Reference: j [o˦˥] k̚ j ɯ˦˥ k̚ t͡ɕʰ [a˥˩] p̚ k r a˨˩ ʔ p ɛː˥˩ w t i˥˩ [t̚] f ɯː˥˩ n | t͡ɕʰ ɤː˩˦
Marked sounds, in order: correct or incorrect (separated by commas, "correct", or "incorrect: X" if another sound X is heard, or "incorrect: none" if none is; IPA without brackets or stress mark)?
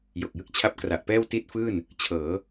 incorrect: o˨˩, incorrect: a˦˥, correct